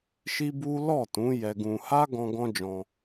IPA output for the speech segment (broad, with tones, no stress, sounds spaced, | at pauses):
ʃ i˦ b u˦ l ɔ˦˨ t ũ˨˦ j ɛ˧ ɡ ũ˧ h a˦ ɡ ɔ̃˧ ɡ ɔ̃˦ d͡ʒ ɔ̃˧